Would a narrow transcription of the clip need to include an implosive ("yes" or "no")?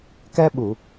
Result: yes